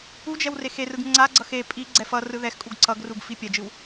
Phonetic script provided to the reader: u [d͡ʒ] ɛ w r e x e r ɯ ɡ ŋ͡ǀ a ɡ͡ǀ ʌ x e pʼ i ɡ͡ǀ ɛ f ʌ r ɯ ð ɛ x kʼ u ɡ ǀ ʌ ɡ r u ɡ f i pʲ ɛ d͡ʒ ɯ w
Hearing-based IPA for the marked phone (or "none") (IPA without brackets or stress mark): d͡ʒ